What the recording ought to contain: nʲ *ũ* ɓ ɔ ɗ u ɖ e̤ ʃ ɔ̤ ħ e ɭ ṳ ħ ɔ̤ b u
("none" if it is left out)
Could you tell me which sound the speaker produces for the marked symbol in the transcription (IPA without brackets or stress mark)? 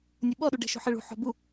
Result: u